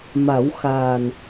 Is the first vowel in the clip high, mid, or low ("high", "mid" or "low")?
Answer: low